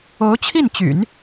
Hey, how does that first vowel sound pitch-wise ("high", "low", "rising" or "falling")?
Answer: rising